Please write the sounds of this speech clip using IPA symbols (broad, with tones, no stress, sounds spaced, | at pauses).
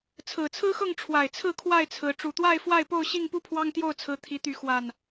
t͡sʰ ɹ̩˨˩ t͡sʰ ɹ̩˦ x ɤ˥˨ ŋ ʈ͡ʂʰ w a˨˩ ɪ̯ t͡sʰ ɹ̩˥˨ kʰ w a˥˨ ɪ̯ t͡sʰ ɹ̩˨˦ ʈ͡ʂ u˨˩ t̪ w a˥˨ ɪ̯ f w a˥˨ ɪ̯ p o˥˨ ʊ̯ ɕ i˥˨ ŋ p u˥˨ pʰ w ɑ˦ ŋ t̪ j o˥˨ ʊ̯ t͡sʰ ɹ̩˨˦ t̪ʰ i˨˦ t̪ y˨˦ x w a˨˩ n